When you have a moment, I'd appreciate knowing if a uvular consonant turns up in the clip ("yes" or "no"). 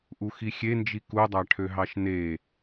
no